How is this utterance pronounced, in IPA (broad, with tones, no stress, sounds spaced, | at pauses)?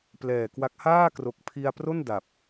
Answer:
p l ɛː˨˩ k w a˦˥ k̚ h aː˥˩ k r o˨˩ k̚ pʰ i˧ a̯ p r o˥˩ n d a˨˩ p̚